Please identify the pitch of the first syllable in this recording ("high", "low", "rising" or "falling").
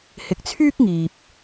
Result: low